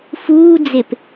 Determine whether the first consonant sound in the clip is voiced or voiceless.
voiceless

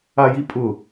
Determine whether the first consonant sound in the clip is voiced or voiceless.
voiced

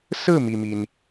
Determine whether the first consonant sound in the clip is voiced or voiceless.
voiceless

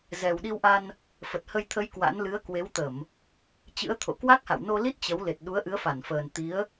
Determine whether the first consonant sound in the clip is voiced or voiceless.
voiced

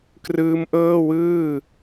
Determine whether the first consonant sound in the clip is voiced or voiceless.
voiceless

